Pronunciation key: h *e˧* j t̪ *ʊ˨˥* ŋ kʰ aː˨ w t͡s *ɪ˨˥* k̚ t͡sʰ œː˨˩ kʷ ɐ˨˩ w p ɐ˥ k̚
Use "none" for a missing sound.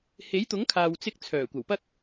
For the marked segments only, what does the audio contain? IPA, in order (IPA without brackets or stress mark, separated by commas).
e˨˥, ʊ˨˥, ɪ˧